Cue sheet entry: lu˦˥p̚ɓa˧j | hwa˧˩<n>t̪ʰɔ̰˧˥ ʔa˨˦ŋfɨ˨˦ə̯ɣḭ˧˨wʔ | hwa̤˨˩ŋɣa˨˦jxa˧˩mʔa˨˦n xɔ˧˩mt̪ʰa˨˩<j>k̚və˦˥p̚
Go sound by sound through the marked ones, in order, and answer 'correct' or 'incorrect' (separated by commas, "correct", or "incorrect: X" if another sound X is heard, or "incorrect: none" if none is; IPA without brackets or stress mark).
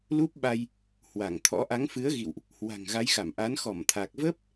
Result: incorrect: ŋ, incorrect: none